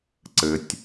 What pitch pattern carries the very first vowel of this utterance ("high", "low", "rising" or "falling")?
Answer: low